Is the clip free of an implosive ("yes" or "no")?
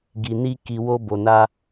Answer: yes